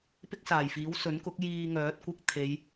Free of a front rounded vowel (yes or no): no